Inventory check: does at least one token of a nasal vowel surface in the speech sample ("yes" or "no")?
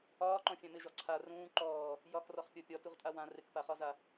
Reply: yes